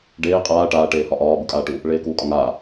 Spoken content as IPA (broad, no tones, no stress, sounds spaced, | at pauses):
ɖ eː qʼ aː ʈ aː ʈ eː h ɒ ʔ ɒː b u kʼ aː ʈ u | ɭ eː k uː kʼ ɒ ŋ aː